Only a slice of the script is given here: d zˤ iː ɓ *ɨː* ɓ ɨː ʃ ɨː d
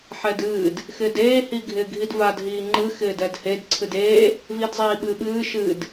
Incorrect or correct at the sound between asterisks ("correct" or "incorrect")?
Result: correct